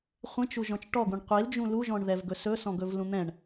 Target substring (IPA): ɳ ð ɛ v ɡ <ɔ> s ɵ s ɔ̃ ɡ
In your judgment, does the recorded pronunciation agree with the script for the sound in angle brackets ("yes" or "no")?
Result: no